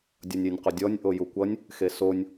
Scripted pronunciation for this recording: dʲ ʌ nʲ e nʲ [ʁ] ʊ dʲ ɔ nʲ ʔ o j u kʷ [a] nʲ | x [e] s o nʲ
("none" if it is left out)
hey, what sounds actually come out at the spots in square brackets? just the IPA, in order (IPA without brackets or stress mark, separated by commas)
q, ʌ, e